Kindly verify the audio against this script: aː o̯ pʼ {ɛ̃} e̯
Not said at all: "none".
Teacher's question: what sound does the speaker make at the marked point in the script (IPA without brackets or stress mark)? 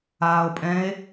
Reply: ɛ̃